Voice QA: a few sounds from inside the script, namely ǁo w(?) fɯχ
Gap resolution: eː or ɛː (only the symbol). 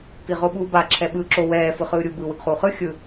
ɛː